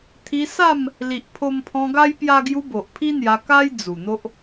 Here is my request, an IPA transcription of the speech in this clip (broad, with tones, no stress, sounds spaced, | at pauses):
t̪ʰ i˧ s a˥˧ m | l i˨ ʔ pʰ o˧ m pʰ ɔ̃˧ ɡ a˦ j p j a˧ ɡ j u˧ b o˨ ʔ pʰ i˦ n̪ j a˧ k a˦ j d͡z u˨˩ n̪ o˦ ʔ